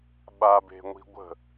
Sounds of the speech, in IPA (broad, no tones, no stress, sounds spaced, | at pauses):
ɓ a b e̤ ŋʷ i̤ ɡʷ ə̤